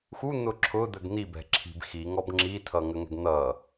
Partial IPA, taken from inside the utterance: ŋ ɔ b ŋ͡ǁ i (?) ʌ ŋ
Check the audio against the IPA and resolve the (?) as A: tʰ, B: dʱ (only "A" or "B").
A